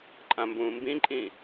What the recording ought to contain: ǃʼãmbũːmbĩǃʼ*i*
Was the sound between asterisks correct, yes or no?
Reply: no